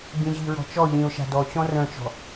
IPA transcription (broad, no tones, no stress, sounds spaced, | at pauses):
b ĩ ʑ i ɹ ɔ̤ t͡ʃ ɔ ʎ ĩ ʊ̯ ʃ a̤ d ɔ t͡ɕ ɔ̃ r œ̃ t͡ʃ ɔ̤